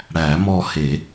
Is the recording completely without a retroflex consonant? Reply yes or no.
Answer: no